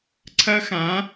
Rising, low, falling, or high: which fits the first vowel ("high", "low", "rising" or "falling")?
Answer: high